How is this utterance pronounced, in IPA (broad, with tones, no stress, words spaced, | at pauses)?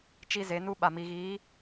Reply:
t͡ʃi˦ze˨˦nu˦ ɓa˨mi˨ɣiː˨˦